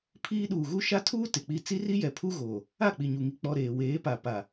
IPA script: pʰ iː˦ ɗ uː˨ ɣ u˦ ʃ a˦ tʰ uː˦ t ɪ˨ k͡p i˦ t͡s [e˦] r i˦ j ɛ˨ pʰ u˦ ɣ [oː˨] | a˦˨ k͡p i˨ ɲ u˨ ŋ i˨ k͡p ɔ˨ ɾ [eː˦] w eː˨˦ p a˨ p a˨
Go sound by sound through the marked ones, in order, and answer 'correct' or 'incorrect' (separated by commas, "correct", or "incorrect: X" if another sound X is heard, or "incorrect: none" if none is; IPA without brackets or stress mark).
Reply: incorrect: i˦, correct, incorrect: eː˨